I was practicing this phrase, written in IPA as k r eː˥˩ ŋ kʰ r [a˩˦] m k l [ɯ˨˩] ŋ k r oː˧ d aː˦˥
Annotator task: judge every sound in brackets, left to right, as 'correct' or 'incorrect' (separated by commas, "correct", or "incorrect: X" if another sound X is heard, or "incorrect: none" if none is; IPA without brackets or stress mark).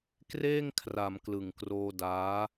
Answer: correct, correct